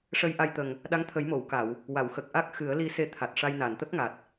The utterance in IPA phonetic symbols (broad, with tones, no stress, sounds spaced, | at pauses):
ʂ ə˧ j ʔ a˧ j t̪ ə˨˩ ŋ | ɗ a˧˥ ŋ t̪ʰ ə˨˩˦ j m o˨˩˨ w k a˨˩˨ w | w a˨˩˨ w x ə˨˩ k̚ ʔ a˦˥ k̚ x ɨ˨˩˦ ə̯ l i˧ s e˧ t̪ʰ a˨˩ t̚ ʂ a˧ j n a˨˩˨ n t̪ ə˦˥ k̚ ŋ a˨˩ t̚